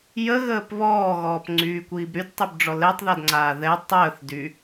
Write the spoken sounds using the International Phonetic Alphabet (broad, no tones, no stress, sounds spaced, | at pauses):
j ə ɣ əː p β ɔː ɣ ɔː p ŋ͡ǀ yː kʷ iː b ɾ y d tˤ y b ɖ͡ʐ ɔ l ɛ tˤ ð a d ŋ͡ǀ aː ð ɛ tˤ əː θ d y